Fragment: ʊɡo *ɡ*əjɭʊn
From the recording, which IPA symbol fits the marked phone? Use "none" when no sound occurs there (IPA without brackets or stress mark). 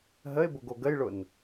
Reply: ɡ